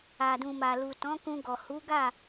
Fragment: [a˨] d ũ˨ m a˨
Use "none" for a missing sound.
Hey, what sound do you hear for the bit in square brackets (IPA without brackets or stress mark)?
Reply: a˨